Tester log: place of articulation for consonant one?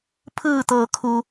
labial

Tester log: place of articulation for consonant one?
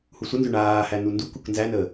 glottal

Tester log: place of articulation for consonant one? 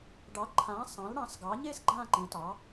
retroflex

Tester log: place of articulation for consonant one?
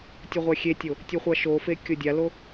alveolar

